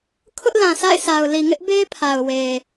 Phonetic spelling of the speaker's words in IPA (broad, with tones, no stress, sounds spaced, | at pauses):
kʰ ʊ˦ ʔ l ã˨ sʰ a̰˦˨ ɪ̯ sʰ a˨ ʊ̯ l i˨ ŋ ɪ˦ ʔ b e˦ pʰ a˨ ʊ̯ w e˨